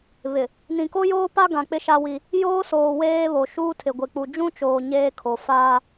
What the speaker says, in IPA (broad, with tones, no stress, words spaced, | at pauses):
βɪ˨ | nĩ˨ko˦joː˦ pa˦ɡã˨ k͡pɪ˦ʃa˦wi˦ | joː˦soː˨ weː˦βo˨ ʃuː˦tʰɪ˨ɡʷɪ˨ k͡pu˨d͡ʒũ˦ t͡ʃoː˨ ɲeː˦kʰo˨ faː˦